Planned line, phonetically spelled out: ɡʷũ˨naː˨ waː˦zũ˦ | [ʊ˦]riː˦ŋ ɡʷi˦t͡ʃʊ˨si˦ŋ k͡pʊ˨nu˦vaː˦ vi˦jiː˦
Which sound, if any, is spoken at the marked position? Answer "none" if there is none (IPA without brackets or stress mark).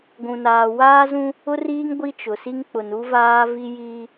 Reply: ʊ˦